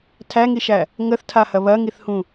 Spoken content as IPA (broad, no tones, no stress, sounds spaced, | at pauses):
tʰ æ ŋ i ʃ æ | ŋ ə θ tʰ a h ɐ β ɐ ŋ i θ h ũ